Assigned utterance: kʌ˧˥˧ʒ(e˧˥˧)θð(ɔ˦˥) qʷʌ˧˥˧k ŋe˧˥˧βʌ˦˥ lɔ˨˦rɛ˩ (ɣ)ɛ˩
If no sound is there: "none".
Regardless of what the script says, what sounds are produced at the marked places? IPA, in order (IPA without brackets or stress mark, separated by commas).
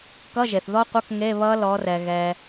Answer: e˩, ɔ˦˥, ɣ